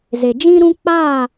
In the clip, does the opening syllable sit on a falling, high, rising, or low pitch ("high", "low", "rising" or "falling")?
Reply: low